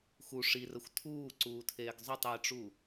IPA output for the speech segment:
x u ʂ i r ə xʷ tʰ uː ǀ uː tʰ eː ɡ zˤ ɵ tˤ j i ʈ͡ʂ u

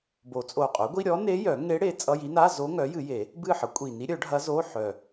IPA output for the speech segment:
b o˨˩˦ t͡sʼ o˨˩ qʼ œ˩˥ ɡʷ i˧˥˧ ɾʲ ɔ˧˥ n e˧˥ j œ˨˩˦ ŋ e˧˥ ɽ e˩˥ t͡sʼ ʌ˧˥˧ j i˧˥ n a˧˥˧ z o˧˥ ŋ œ˩˥ j ɨ˨˩˦ j e˨˩˦ | b ɨ˦˨ ħ ʌ˩˥ kʷʼ i˨˩ n i˧˥ ɾʲ œ˨˩˦ ɖʱ ɐ˧˥ z o˧˥˧ ħ œ˨˩

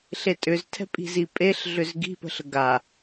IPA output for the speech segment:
ɬ e tʼ ʏ z tʰ ɛ̤ pʼ i̤ z i pʼ e ɬ ɮ ʏ z ɡ i̤ p ə̤ ɬ ə ɡ a

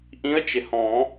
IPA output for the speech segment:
ʔ ĩ˧˥ ə̯ t͡ʃ ɪ˩ h ɔ̃˨˩˦

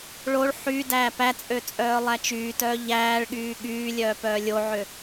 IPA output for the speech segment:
ɭ o ɭ ħ y d æː p æ t͡sʼ ø t͡sʼ œː lˠ æ t͡ʃ yː t œː ʎ æː ɭ ɠ yː ɠ yː lʲ œː p œː lʲ o ʕ ø

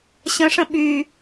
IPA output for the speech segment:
ɕ ə̃ ʂ ə̃ ɓ y

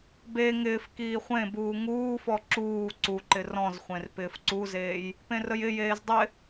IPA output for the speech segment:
b e ŋ ɪː f k iː χʷ ẽ b uː ŋ uː f ɔ ǁ uː ǀ u ǃ ɪ r ɔ̃ z χʷ ẽ r p ɪː f ǀ u z eː j | p ẽ r ə j ɪ j eː z dˤ ɪ

